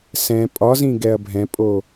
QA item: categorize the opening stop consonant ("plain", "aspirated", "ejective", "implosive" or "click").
ejective